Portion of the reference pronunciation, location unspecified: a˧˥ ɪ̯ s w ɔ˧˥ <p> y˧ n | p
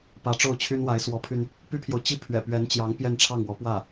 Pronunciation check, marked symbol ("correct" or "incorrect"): incorrect